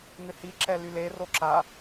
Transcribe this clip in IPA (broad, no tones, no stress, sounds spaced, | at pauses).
ŋ ʏ h i ǁ ɛ l y l e r o ǁ a